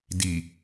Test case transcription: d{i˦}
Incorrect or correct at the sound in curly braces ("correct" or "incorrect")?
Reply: incorrect